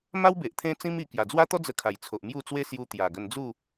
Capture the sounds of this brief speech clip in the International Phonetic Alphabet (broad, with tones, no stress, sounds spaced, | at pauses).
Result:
m a˦ w b e˨ ʔ t̪ʰ ẽ˦ t͡s ĩ˦ m i˧ k j a˨˩ d͡z w a˦ t̪ ɔ˦ d͡z ə˧ kʰ a˨˩ j t͡sʰ o˨ ʔ m j u˥˧ t͡s w e˦ s j u˧ t̪ j a˨˩ ɡ ə˧ n d͡z u˥˧